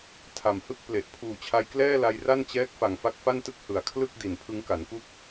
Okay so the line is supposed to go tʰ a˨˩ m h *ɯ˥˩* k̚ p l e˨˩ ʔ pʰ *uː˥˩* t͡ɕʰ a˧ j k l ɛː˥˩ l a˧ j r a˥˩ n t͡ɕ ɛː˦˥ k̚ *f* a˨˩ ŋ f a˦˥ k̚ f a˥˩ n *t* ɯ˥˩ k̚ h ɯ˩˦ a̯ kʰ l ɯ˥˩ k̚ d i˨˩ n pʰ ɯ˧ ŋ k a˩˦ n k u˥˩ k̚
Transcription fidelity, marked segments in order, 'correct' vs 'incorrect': correct, incorrect, correct, correct

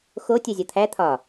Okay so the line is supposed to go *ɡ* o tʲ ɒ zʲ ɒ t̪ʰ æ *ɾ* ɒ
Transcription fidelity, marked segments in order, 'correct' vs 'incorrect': incorrect, incorrect

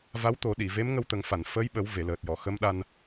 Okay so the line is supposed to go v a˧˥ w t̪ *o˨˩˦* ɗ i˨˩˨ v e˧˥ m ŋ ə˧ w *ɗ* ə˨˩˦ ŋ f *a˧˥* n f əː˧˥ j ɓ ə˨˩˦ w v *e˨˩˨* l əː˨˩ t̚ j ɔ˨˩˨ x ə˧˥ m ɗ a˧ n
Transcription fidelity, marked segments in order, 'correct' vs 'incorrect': correct, incorrect, incorrect, correct

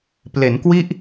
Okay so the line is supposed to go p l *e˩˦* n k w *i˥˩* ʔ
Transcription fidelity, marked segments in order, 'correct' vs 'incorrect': correct, correct

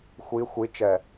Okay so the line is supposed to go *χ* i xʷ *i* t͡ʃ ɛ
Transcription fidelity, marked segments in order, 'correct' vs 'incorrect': incorrect, correct

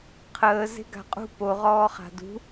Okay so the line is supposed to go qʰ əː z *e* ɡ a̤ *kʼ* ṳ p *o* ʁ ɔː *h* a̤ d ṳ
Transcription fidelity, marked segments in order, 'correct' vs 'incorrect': incorrect, incorrect, correct, incorrect

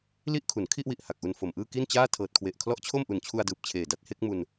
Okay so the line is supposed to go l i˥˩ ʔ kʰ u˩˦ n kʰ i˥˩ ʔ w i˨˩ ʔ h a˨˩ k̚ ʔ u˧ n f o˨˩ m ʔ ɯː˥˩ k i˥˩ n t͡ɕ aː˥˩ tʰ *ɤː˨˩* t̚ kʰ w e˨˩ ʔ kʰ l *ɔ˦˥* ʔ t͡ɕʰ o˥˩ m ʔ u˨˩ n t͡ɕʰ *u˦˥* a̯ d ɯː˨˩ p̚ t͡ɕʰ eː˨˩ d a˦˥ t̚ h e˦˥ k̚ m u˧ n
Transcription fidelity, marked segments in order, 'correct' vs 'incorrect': correct, correct, incorrect

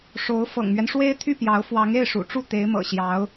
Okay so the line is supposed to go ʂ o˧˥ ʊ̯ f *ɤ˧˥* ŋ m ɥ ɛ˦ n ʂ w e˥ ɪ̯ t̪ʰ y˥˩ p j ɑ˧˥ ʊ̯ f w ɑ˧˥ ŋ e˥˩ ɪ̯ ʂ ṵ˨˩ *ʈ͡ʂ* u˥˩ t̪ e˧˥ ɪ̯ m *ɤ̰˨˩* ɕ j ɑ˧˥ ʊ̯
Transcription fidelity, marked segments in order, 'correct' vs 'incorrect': incorrect, correct, correct

